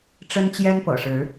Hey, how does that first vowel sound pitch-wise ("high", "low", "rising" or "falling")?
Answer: high